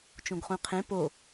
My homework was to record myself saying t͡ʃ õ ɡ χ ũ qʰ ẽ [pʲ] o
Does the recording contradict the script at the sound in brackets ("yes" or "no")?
yes